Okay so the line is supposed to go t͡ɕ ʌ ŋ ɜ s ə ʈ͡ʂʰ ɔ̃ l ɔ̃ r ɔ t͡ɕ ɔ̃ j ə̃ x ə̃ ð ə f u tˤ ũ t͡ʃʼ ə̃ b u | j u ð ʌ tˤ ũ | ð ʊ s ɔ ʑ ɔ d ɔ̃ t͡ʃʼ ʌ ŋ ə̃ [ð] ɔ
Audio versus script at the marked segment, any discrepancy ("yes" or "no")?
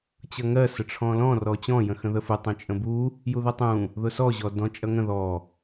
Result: no